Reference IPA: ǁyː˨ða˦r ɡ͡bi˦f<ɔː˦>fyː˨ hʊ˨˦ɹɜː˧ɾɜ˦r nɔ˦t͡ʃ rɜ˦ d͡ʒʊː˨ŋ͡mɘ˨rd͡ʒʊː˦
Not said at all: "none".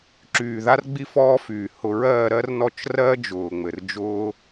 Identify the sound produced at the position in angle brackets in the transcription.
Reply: ɔː˦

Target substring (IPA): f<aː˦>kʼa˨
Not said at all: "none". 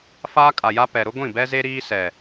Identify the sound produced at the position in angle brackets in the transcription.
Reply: aː˦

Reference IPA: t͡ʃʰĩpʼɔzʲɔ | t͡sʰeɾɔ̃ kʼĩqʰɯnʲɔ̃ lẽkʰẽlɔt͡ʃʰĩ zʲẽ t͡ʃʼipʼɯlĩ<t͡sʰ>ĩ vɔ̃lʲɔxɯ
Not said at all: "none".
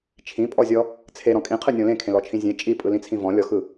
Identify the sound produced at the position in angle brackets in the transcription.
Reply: t͡sʰ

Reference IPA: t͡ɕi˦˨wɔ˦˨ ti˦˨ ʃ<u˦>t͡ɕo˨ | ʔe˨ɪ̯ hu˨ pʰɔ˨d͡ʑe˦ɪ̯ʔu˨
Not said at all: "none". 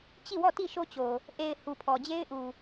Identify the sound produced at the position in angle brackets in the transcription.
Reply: o˦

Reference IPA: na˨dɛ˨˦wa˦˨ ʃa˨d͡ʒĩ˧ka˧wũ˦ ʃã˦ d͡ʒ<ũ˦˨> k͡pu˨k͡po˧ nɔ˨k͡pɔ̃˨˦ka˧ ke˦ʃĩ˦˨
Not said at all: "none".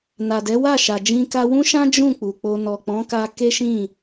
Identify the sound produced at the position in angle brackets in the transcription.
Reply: ũ˦˨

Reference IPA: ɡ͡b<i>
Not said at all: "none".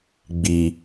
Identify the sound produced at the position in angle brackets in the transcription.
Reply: i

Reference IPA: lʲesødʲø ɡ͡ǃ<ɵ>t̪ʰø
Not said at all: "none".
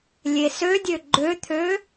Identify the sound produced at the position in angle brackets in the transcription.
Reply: ø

